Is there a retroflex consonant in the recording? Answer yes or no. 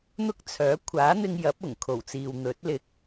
no